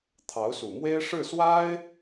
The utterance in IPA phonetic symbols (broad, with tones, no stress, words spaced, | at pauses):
t̪ʰɑ˧˥ʊ̯su˨˩mwe˥ɪ̯ ʂɻ̩˥˩swa˥ɪ̯